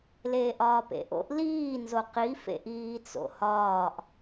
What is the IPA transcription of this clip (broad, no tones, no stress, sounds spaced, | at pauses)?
l eː ʔ ɒː p ḛ ʔ o̰ ʔ l iː n z o q i f ḛ ʔ iː t͡s o̰ h ɒː ʔ